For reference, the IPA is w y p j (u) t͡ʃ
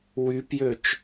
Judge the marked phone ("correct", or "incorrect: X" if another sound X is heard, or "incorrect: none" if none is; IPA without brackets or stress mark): incorrect: ø